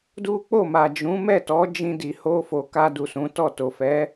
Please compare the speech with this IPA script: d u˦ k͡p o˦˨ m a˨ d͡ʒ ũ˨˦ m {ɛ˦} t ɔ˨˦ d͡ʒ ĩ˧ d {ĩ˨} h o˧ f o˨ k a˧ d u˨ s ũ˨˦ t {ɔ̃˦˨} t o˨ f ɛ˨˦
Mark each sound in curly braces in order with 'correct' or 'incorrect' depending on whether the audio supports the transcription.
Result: incorrect, incorrect, incorrect

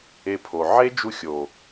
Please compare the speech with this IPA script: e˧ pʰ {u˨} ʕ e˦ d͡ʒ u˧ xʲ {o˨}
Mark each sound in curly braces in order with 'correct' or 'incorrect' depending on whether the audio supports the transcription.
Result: incorrect, correct

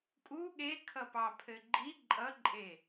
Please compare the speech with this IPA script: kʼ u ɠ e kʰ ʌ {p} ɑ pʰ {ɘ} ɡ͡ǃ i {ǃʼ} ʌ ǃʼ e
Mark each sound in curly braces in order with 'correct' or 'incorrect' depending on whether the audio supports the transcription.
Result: correct, correct, correct

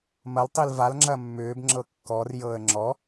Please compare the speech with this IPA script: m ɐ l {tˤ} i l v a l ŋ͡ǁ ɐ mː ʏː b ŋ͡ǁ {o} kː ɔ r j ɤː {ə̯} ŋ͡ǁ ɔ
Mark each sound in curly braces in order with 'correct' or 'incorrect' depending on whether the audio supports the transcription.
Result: correct, incorrect, correct

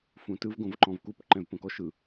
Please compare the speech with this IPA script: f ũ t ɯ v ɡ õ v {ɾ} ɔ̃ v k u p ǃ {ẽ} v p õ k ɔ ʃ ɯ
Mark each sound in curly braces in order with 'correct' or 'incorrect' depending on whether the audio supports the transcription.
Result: incorrect, incorrect

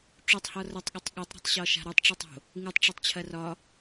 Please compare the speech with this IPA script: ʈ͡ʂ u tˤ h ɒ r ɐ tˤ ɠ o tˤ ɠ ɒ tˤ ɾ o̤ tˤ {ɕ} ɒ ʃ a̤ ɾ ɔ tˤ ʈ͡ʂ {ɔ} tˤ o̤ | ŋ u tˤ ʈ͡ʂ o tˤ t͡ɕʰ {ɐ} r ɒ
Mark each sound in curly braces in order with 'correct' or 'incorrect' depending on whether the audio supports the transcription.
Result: correct, correct, correct

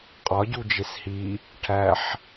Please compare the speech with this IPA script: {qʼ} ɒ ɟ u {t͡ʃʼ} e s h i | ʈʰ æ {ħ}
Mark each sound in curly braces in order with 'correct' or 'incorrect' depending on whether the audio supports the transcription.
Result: correct, incorrect, correct

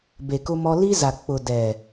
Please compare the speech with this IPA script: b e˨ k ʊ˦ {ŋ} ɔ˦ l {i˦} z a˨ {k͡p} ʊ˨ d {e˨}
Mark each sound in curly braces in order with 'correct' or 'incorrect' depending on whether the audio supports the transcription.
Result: incorrect, correct, correct, incorrect

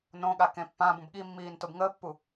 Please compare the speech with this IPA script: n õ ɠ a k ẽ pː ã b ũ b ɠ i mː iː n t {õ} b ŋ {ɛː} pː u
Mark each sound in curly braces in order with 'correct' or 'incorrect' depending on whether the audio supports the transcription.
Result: incorrect, incorrect

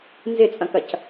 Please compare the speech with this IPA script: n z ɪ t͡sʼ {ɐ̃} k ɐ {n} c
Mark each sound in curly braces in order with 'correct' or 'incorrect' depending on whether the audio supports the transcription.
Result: correct, incorrect

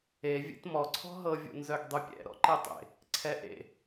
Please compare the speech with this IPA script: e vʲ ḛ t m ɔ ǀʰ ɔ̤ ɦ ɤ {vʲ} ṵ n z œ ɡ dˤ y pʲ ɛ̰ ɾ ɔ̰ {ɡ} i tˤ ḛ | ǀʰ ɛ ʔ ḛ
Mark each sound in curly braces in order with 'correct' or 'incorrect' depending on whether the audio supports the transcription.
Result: correct, incorrect

